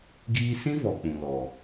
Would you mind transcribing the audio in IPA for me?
ɡ iː˧ s ĩ˦ v ɔ˨ k͡p ũ˨ l ɔ˨

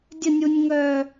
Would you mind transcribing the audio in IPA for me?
dʲ ə nʲ u nʲ ŋ œː

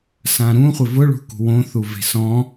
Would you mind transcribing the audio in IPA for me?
s ã ɾ ũ χʷ ɪ v ʊ ɭ ṳ k ṳ w õ θ u v e̤ s ɔ̃

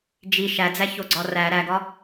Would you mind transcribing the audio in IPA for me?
d͡ʒ i ʃ æ d͡z æ ç o ɡ͡ǀ ɒ r æ ɾ æ ɡ ɒ

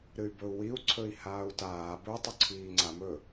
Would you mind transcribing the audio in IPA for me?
ɾ ɨ y̯ b ɵ u̯ w i u̯ ǀʰ ɵ i̯ h aː u̯ t aː b ɵ tˤ ɵ ǀʰ iː ŋ͡ǀ a m ɵ

